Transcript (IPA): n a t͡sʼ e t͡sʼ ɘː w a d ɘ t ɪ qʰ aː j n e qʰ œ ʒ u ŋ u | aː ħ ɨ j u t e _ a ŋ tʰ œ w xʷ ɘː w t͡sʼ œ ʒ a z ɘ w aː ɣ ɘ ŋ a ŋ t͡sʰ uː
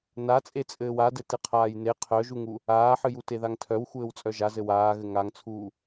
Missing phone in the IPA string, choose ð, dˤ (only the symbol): ð